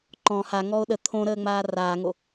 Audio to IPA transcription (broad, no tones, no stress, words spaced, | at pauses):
ǃɔ̃ haŋɔo̯ ɗə t̪ʰõɾəːŋ͡maː raːŋo